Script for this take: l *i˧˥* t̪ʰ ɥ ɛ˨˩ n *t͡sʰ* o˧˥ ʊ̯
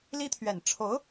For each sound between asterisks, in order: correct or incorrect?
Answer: incorrect: i˥, incorrect: ʈ͡ʂʰ

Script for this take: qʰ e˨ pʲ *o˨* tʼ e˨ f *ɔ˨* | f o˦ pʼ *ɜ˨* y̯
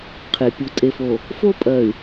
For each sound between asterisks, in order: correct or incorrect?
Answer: incorrect: u˨, incorrect: o˨, correct

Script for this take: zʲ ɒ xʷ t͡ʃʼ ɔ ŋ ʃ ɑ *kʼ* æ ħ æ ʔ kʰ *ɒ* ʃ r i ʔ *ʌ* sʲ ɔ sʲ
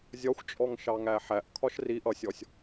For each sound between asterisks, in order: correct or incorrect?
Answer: incorrect: ŋ, correct, correct

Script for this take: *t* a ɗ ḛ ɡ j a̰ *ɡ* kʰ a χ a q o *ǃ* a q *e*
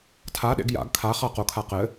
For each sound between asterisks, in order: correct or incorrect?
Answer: incorrect: tʰ, correct, incorrect: kʰ, incorrect: ɘ

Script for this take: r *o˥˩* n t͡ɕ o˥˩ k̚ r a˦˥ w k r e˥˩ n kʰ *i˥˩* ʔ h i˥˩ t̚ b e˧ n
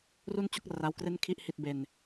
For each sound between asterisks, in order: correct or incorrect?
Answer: incorrect: u˥˩, correct

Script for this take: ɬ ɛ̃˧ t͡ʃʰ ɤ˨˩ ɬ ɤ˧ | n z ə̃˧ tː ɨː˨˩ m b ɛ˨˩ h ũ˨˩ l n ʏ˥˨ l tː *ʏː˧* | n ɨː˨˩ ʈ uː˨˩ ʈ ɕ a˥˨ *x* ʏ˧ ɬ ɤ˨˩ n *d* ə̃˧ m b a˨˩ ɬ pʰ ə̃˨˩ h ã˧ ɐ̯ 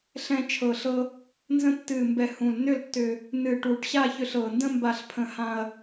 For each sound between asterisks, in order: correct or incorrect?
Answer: incorrect: ʏ˧, incorrect: ç, correct

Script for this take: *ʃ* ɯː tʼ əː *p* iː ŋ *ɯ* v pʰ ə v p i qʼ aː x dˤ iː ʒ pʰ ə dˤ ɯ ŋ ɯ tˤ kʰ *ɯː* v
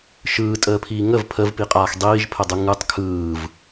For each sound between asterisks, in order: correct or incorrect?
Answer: correct, incorrect: pʰ, incorrect: ə, correct

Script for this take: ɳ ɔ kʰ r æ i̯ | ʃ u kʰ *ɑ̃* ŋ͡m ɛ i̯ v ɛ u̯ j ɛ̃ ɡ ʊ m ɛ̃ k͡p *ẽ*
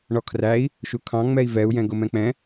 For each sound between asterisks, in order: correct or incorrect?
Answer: correct, incorrect: ɛ̃

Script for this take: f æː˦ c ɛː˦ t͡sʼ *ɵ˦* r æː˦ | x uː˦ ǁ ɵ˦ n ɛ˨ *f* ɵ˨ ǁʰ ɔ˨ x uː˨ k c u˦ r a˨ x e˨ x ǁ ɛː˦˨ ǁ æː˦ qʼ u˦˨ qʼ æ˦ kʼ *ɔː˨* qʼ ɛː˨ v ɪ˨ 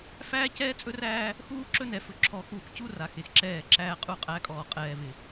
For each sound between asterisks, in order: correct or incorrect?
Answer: correct, correct, correct

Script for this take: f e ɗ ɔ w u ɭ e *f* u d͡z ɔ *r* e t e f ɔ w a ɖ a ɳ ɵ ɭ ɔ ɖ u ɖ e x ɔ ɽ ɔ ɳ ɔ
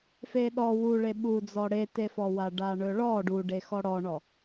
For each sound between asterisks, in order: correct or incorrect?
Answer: incorrect: ɓ, incorrect: ɽ

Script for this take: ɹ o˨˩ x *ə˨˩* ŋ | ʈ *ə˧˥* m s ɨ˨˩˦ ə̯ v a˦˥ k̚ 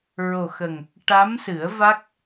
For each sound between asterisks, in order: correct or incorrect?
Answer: correct, incorrect: a˧˥

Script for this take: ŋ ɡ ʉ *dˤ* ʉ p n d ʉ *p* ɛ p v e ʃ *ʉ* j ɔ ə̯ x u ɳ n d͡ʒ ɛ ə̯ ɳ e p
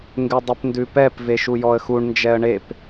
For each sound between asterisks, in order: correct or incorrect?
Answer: correct, correct, incorrect: u

